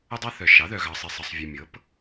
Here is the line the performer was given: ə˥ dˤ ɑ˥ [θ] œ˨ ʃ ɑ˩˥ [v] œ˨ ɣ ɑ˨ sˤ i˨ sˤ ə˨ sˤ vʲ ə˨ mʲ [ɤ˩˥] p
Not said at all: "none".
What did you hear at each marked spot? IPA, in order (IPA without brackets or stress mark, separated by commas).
θ, ð, ɤ˩˥